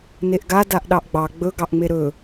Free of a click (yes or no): yes